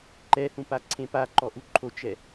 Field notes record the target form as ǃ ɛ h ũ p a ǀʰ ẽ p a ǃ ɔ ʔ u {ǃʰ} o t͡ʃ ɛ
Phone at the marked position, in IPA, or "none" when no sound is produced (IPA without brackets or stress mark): ǃʰ